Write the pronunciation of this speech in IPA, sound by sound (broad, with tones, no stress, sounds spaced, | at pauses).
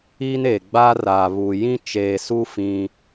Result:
iː˦ n e˨ ɡ͡b a˦ r aː˨ β u˨ j ĩ˦ t͡ʃ eː˨ s u˦ f ĩ˦